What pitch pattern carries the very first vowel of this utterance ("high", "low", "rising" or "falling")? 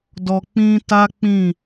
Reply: low